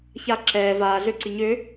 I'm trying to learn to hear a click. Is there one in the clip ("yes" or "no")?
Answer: yes